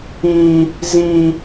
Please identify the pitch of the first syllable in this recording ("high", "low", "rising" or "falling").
high